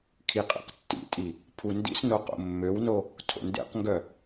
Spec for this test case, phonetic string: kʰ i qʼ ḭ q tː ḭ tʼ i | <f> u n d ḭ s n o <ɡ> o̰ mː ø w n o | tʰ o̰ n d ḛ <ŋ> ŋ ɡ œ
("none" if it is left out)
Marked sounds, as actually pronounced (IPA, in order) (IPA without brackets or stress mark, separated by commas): pʰ, q, q